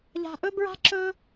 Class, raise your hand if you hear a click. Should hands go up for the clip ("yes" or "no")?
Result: yes